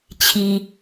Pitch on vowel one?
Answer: high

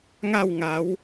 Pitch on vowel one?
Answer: falling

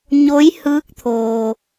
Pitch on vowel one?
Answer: rising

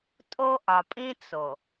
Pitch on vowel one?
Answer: high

